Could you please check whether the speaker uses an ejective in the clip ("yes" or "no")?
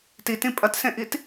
yes